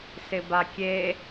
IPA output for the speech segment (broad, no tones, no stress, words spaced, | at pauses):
sɪbakʲe